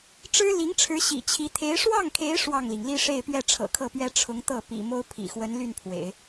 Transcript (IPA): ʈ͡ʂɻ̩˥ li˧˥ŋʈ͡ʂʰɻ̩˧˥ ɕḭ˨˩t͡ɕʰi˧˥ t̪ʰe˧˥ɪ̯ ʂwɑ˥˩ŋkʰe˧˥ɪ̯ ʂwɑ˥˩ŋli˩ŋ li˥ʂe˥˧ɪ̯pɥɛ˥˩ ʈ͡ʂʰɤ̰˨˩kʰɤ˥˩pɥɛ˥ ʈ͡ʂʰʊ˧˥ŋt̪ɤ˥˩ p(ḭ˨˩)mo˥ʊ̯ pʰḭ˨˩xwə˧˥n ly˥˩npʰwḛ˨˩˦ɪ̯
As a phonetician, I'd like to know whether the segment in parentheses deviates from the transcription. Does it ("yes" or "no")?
no